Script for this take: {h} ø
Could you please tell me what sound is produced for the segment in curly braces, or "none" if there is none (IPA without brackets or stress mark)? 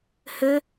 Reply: h